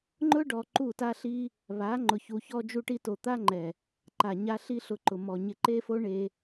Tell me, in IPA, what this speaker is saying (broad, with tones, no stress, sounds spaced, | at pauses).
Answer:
ŋ͡ǃ ʊ˦ ɖ ɔ˧ ǃ u˦˨ t a˦ ɬ i˦ | β a˨˦ ŋ͡ǃ ʊ˧ ç u˧ ç ɔ˧ d͡ʒ u˧ ʈ i˧ t o˨ t̪ a˦ ŋ͡ǃ ɛ˨ | ǃ a˨ ɲ a˧ ɬ i˦ ɬ ʊ˧ ǃ ʊ˨ m ɔ˨ ɲ ɪ˧ ǃ e˦ f o˦ ɳ e˧